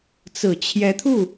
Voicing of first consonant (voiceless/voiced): voiceless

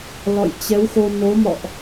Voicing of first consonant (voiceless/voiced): voiced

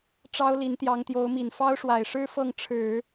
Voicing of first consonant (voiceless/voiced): voiceless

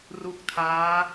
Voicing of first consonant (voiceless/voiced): voiced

